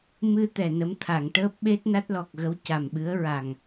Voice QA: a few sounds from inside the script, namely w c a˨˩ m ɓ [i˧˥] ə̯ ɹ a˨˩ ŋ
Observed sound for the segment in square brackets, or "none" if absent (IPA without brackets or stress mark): ɨ˧˥